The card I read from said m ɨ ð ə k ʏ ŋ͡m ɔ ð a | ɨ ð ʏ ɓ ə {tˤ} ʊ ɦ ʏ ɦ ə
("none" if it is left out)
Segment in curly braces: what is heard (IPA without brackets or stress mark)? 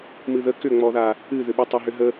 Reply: tˤ